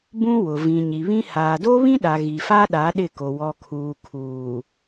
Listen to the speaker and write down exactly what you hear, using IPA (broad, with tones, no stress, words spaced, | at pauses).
bũ˦wʊ˨vĩ˨ ɲi˨βĩ˦ haː˨do˦βĩ˦ɗa˨ ɣi˨fa˦ɗa˨˦ ɗɪ˦˨ko˨ wɔ˨kʰuː˨kʰuː˨